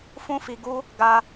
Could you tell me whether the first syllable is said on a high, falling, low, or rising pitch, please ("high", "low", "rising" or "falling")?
high